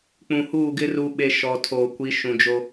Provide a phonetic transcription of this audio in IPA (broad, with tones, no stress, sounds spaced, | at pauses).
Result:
k͡p ũ˨ h uː˦˨ ɡ ɪ˦ r u˨ ɓ e˨ ʃ ɔ˨ tʰ oː˨ kʷ i˨˦ ʃ ũ˨ d͡ʒ o˦